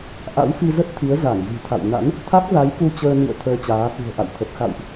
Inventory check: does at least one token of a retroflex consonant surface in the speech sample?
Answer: no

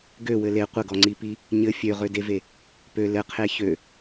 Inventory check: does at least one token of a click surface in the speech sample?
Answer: yes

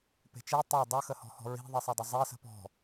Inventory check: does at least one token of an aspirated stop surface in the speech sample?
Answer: no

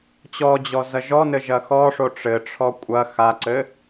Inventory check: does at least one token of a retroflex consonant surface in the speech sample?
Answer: yes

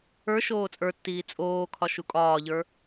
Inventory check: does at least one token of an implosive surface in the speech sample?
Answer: no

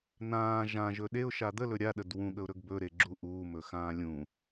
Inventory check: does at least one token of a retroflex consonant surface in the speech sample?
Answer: no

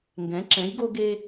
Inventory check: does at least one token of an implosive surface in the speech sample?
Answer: no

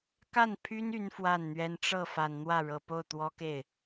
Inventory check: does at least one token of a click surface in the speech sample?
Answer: no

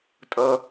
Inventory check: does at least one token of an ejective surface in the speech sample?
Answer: yes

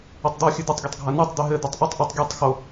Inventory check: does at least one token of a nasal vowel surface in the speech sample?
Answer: no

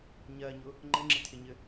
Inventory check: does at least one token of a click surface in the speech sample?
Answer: yes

